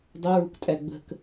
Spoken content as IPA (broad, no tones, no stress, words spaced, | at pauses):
dˤʊɹuktʼæ ɡ͡bə̤k